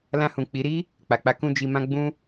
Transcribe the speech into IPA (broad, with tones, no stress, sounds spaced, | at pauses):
l ã˧ h ũ˨ k͡p i˨˦ ɾ i˦ | k͡p a˨ k͡p a˨˦ k ũ˧ d͡ʒ i˧ m ã˦ ɡ͡b ũ˦